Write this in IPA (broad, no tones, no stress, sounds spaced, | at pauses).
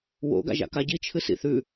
w o̰ ɡ a̰ ʒ a̰ k a ɟ i t͡ʃʰ ɨ s ḭ θ ʉ